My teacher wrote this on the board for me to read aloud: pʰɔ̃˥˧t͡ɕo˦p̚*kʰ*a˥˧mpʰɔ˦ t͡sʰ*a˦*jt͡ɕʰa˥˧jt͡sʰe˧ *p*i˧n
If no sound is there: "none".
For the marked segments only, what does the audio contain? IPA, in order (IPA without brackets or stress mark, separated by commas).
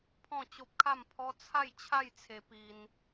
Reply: kʰ, a˥˧, p